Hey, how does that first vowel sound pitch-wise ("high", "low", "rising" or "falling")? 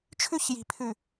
high